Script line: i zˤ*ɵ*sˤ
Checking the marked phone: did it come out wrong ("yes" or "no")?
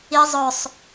no